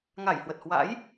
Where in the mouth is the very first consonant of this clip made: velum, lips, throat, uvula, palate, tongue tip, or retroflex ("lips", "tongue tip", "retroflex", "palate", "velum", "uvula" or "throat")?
velum